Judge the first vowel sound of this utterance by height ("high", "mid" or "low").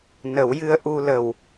mid